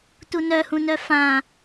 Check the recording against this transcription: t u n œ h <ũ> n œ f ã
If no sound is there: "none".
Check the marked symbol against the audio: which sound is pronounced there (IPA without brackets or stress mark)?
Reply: ũ